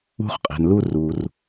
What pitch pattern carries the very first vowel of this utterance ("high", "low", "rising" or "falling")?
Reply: high